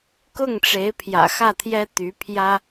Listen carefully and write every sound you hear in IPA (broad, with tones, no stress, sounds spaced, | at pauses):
k ʊ˥˩ ŋ ʈ͡ʂ e˧˥ ɪ̯ pʰ j ä̰˨˩ x ä˥˩ t̪ʰ j ɛ˥ t̪ y˧˥ pʰ j ä˥